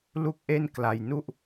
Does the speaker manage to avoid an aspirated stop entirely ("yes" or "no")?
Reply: yes